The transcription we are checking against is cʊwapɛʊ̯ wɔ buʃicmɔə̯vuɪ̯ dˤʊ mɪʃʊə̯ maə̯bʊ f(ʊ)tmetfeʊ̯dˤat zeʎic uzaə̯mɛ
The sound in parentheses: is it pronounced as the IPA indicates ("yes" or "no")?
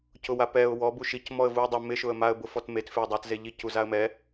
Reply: no